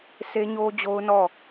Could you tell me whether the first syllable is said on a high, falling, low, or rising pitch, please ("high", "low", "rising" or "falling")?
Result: high